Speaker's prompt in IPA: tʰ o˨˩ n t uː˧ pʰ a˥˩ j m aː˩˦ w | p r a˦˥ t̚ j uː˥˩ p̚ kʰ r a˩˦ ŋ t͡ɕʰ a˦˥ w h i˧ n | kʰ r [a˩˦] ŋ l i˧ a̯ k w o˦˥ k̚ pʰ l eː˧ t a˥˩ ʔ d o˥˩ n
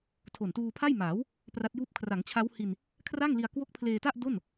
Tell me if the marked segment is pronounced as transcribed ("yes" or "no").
no